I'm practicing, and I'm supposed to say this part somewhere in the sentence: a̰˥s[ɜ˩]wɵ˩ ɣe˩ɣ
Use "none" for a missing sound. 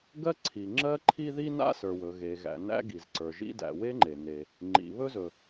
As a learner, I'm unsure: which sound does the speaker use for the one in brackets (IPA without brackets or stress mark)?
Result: ə˞˩